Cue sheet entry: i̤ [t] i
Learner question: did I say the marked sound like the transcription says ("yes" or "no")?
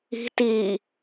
yes